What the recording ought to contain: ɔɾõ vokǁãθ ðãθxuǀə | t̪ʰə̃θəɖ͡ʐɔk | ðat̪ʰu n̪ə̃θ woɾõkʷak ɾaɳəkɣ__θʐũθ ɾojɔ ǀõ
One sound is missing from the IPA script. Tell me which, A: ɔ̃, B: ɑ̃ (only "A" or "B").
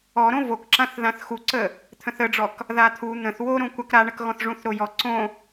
A